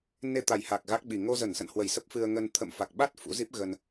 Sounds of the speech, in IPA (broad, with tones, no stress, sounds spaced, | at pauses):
n e˧ t̪ a˨˩ j h a˨˩ k̚ ɣ a˦˥ k̚ ɓ i˨˩ ŋ o˧ z ə˧˩ n s ə̰˧˨ n h w ə˧˩ j s ə˦˥ p̚ f ɨ˧ ə̯ ŋ ə˧ n t̪ʰ ə̰˧˨ m f a˨˩ k̚ ɓ a˦˥ t̚ f ṵ˧˥ z i˦˥ p̚ ɣ ə˧ n